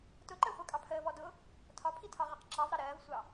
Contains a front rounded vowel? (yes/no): no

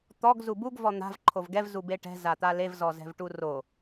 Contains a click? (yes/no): yes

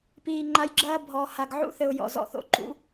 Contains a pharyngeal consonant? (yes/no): yes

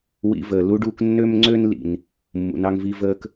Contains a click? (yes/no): yes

